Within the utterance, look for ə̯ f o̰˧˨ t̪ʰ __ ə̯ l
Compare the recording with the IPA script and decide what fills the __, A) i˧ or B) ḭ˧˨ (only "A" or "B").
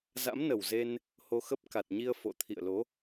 B